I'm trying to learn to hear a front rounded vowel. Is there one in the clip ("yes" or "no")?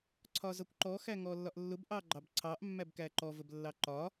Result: no